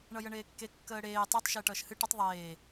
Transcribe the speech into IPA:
ɳʌjəɳeːkːe kːəːɽeː tˤetˤ ʃeːʈʌːʃhɨ ʈətˤ ðˤeː

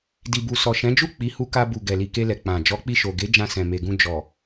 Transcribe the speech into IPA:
di˨bu˨ sɔ˨ʃɛ̃˨˦d͡ʒu˦˨ k͡pi˨˦hu˧ka˧ bu˨ ɡɛ˨li˨ke˧lɛ˨ k͡pã˨ d͡ʒɔ˨˦k͡pi˧ ʃo˨ɡe˨˦ d͡ʒã˧sɛ̃˨me˨ɡũ˧ d͡ʒɔ˨

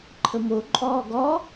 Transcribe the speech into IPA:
ǃʰəmo ǃʼɔːɡɔ

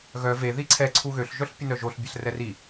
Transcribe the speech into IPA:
ɣœ ve ðiǀʰɛ ǀʰuɣøɬ ʒœɬpʲənœʒoɬ bʲɛɬrɛri

